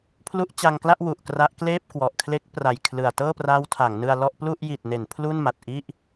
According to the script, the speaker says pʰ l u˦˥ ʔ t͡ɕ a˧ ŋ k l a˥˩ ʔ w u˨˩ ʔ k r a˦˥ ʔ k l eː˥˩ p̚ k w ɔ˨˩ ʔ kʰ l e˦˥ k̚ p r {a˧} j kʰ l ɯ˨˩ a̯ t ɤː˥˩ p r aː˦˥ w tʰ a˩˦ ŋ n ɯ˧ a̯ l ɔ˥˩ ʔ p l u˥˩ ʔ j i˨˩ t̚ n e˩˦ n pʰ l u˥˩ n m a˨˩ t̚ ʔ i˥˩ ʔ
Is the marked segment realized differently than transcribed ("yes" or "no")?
yes